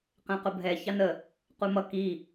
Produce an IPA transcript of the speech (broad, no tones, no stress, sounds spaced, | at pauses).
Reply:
q ɛ̃ q ʊ bʱ ɛ ç ɑ n ə | q u m ʌ k i